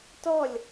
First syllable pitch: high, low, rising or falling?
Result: falling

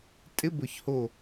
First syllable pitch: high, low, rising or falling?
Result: rising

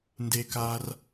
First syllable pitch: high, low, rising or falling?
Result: high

